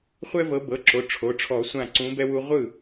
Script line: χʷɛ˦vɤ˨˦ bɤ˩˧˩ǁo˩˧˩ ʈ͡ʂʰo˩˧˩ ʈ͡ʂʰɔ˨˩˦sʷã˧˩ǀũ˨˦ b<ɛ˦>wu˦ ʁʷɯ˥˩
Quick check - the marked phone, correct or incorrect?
correct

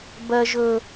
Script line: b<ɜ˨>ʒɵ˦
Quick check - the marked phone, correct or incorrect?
incorrect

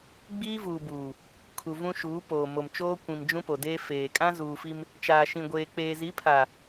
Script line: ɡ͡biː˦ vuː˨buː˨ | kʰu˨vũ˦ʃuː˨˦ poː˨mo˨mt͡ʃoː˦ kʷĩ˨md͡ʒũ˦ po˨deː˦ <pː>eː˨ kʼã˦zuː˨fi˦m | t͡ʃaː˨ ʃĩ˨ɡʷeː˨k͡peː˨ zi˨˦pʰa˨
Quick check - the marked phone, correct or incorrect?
incorrect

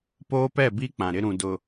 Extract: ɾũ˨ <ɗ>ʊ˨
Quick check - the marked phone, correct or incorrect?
incorrect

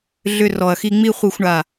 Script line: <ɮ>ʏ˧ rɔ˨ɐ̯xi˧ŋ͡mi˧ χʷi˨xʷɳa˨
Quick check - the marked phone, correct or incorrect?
correct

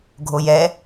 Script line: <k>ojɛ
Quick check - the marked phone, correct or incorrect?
incorrect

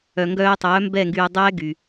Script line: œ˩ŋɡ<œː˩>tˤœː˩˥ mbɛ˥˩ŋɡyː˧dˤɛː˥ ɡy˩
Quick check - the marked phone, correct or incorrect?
incorrect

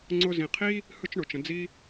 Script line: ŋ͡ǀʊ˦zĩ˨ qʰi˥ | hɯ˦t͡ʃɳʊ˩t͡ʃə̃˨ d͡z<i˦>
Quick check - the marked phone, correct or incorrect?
correct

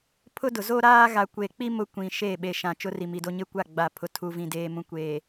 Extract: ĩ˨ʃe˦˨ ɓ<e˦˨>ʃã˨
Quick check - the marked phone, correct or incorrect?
incorrect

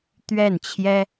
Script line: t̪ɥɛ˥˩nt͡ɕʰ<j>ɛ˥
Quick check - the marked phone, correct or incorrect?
correct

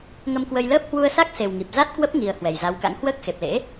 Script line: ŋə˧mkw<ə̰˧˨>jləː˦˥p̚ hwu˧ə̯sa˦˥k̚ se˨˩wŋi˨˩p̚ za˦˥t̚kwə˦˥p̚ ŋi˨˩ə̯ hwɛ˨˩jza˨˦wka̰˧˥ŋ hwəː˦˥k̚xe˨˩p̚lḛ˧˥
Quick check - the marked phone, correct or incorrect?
incorrect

